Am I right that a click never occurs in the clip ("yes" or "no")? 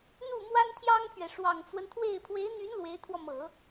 yes